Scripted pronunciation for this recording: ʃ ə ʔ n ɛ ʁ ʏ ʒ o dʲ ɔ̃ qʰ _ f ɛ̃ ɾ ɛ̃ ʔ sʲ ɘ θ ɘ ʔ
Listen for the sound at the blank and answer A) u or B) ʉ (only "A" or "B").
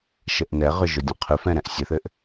B